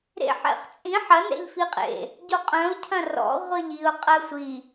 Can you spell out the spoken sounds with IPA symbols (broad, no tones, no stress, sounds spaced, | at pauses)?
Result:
ɾ ḛ ħ ɛ̰ χ t͡sʼ ĩ ħ ɐ n ɛ̰ ʎ f i qʼ ḛ | ɟ o qʼ œ̃ ʊ̯ cʰ ɐ̃ r ɔ̰ ʁʷ ɜ ʎ i ʊ̯ qʼ ɜ sʷ i